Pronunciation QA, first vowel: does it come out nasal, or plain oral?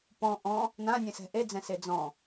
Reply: nasal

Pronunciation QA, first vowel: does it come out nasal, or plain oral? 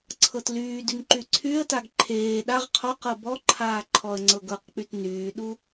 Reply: oral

